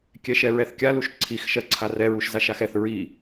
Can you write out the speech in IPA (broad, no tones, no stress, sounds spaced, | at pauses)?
kʲ ɛ ʃ ɛ ɹ ɛ θ kʲ a l u ʃ ǀʰ i x ʃ ɜ ǀʰ a r ɛ ɹ u ʃ z a ʃ a x ɛ θ ɹ i